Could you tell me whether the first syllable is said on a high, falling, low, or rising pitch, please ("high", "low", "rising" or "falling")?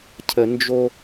low